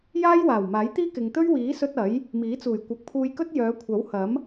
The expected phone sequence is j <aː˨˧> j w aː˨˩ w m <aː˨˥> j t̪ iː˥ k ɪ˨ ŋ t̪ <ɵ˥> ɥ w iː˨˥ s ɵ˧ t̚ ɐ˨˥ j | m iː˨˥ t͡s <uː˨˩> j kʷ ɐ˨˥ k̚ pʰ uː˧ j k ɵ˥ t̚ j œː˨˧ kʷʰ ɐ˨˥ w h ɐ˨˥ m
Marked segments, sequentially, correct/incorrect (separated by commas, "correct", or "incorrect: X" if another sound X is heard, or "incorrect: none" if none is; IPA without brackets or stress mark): incorrect: aː˥, correct, correct, correct